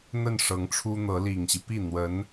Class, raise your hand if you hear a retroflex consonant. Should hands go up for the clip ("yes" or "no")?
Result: yes